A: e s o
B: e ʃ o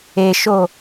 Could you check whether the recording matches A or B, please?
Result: B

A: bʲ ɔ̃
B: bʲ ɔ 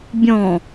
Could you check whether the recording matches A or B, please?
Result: A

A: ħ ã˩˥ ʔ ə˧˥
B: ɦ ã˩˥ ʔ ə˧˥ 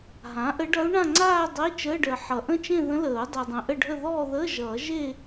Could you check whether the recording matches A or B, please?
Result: B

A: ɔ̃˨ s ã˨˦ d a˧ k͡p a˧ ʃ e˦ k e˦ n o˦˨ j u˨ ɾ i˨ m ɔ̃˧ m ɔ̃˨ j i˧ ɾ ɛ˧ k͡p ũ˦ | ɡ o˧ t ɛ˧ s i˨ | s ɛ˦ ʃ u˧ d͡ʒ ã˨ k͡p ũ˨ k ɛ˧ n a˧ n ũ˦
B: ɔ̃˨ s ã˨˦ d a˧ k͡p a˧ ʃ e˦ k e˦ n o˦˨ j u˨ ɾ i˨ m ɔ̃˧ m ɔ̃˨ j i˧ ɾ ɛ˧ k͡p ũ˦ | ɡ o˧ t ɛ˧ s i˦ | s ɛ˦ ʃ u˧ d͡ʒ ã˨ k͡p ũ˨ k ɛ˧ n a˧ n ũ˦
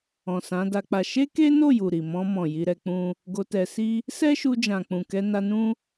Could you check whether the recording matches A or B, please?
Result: B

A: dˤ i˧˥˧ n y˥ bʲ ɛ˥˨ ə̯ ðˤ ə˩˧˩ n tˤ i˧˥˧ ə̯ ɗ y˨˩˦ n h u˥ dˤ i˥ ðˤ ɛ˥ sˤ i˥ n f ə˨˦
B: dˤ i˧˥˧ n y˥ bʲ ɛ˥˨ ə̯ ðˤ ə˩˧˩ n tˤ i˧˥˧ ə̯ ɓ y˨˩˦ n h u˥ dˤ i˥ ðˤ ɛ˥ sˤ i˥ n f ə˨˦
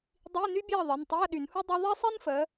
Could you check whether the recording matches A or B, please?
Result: A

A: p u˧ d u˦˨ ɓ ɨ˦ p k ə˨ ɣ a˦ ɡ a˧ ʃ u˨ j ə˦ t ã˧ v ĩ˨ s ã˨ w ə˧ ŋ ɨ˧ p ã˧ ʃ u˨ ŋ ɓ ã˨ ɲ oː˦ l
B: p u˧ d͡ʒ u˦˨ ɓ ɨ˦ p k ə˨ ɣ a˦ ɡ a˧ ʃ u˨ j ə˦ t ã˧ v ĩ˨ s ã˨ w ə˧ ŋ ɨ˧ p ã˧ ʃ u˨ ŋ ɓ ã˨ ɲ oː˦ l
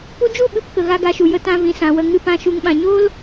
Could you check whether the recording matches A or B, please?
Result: B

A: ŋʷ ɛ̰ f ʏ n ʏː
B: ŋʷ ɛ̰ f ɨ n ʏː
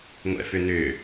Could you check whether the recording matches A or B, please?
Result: A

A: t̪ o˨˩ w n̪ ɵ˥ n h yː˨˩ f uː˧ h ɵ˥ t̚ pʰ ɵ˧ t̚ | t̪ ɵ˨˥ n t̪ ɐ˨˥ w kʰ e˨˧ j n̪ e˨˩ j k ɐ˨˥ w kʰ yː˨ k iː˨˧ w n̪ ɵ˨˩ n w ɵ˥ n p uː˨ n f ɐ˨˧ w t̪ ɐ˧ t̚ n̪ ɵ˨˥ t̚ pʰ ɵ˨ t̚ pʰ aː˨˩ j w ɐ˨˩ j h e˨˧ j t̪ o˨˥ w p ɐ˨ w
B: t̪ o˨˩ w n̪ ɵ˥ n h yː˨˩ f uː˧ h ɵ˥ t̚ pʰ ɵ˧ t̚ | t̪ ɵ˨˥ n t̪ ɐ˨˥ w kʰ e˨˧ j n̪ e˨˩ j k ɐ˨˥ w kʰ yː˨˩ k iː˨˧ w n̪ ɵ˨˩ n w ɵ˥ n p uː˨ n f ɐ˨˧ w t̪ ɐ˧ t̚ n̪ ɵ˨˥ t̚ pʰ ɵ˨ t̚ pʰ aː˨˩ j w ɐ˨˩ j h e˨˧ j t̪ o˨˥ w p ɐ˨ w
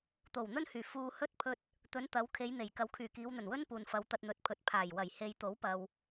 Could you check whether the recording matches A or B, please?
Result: B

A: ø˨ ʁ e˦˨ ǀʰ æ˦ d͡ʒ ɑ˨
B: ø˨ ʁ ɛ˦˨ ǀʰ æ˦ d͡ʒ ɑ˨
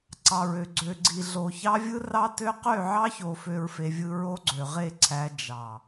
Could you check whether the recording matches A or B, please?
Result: A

